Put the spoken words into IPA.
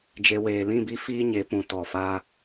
d͡ʒe˧ weː˨lĩ˦˨bi˧ fiː˦ɲe˨˦pũ˨ tɔ˨faː˧

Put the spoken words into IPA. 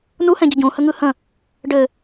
nuhɛ̃ɟə ɟũhəŋɯ hə̃ | ɖɘ

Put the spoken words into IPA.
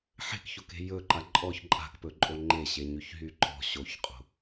ħe̤kçoke̤ jɵǃa ǃʼɔç ǃʼa̤kpɵǃʼo ŋ͡ǃeɕeɲyçɦy ǃɔ̤ ɕoçqʼo̤

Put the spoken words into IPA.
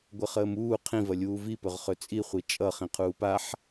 ɡʷəχəːmuː qʰĩvɐ lʲuːvipɵʁχɵ t͡sʼiχʷi t͡ʃʼʌ χĩqʰuːpaħ

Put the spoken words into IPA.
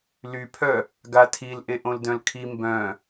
lypʰœ | ɡatʰil ʔeʔõldœ̃lkʰi mbœ̃

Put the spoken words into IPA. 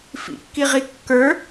fḭkːiʁi kːə˞

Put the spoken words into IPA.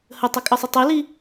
hətˤəkʼəsˤə tˤeli

